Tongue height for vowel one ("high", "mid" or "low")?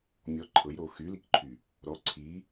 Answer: mid